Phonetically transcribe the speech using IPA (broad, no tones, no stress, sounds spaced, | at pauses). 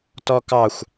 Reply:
t ɔ k ɑ xʷ